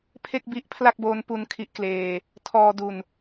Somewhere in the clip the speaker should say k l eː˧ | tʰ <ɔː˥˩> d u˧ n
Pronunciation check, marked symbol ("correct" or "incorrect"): incorrect